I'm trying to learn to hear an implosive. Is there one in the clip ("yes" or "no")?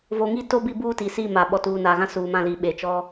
yes